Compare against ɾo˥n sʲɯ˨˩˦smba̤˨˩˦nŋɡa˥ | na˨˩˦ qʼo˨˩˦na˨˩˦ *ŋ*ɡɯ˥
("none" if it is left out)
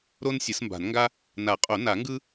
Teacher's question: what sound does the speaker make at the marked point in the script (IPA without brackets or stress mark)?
ŋ